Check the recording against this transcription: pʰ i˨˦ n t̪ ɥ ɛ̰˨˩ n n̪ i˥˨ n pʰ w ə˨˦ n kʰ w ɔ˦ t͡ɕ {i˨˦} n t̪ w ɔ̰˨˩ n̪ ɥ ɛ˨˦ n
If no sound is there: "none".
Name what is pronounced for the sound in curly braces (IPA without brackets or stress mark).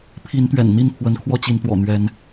i˨˦